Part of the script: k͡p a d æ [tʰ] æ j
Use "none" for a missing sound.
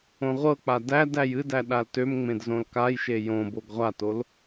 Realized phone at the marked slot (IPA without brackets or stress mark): d